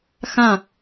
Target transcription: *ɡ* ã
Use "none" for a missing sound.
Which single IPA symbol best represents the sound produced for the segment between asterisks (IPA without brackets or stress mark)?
x